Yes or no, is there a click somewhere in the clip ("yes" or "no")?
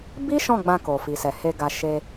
no